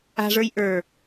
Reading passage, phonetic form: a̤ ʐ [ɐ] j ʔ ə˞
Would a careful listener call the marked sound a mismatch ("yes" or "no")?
yes